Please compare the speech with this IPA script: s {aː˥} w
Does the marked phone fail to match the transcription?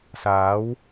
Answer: yes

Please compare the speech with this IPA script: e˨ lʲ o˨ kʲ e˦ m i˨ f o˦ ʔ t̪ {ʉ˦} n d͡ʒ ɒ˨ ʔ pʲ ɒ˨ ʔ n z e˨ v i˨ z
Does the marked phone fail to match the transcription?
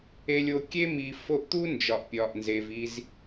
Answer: yes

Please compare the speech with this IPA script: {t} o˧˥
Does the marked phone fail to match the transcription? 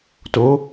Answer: no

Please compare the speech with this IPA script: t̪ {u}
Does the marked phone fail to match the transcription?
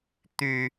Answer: yes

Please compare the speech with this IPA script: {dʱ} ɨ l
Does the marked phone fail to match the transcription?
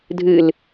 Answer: no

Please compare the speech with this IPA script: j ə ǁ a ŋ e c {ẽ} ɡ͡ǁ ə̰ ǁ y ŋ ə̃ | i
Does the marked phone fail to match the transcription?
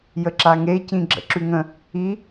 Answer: yes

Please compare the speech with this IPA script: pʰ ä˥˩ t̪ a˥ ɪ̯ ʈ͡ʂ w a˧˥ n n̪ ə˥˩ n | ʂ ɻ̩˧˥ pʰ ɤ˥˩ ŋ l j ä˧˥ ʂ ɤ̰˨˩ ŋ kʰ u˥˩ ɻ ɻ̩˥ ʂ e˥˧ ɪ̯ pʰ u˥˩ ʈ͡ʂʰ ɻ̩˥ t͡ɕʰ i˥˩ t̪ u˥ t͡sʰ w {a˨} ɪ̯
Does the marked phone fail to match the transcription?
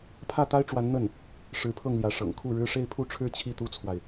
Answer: no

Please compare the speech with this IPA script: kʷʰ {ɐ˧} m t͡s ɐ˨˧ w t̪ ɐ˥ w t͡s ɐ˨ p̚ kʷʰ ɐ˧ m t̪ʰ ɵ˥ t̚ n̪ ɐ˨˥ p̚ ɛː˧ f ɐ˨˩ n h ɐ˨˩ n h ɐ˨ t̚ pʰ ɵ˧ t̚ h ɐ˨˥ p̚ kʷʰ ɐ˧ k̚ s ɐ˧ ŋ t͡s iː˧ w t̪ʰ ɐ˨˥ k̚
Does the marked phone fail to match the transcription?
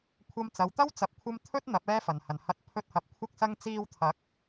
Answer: no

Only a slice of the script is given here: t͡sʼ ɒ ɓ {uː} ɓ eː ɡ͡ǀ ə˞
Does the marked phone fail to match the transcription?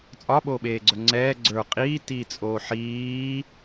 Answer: yes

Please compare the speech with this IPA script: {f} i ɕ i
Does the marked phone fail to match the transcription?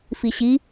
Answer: no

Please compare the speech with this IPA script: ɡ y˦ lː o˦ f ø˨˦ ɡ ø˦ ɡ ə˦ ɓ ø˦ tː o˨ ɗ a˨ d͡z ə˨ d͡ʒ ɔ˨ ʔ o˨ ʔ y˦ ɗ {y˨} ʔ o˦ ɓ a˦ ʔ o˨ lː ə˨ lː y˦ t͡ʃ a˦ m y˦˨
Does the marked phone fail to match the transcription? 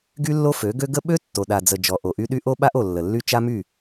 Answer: yes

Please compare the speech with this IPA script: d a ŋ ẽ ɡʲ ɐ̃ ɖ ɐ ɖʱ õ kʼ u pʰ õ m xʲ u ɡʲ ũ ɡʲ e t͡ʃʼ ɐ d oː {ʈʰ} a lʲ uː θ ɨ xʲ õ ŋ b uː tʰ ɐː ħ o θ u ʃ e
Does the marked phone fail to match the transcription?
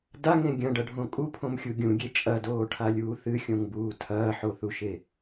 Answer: no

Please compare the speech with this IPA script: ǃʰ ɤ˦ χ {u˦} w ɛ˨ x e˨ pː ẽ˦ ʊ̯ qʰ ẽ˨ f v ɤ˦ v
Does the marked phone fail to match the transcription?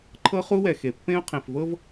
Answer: no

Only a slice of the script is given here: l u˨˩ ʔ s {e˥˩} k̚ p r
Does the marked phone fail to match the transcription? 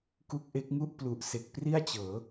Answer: yes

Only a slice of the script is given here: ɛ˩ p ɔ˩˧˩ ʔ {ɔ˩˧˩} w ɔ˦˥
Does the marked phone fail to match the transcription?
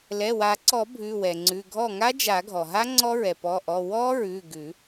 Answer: no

